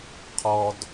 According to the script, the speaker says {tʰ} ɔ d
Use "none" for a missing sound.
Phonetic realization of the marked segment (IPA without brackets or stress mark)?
qʰ